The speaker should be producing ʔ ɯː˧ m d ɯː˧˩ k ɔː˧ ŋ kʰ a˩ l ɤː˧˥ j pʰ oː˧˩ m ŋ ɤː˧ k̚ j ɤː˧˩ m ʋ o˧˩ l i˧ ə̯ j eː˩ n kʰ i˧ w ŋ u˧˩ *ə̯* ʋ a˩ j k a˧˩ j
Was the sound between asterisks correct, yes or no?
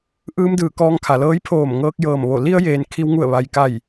yes